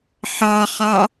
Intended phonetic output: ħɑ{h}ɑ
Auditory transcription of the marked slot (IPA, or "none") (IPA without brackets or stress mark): χ